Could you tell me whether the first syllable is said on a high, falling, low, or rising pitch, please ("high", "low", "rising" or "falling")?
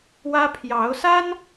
high